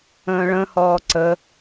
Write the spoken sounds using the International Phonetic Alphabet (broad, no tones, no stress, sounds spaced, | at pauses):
ə̃ː ɭ ə̃ h ɔː ǀ ə